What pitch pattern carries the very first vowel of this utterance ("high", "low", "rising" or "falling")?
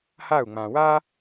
falling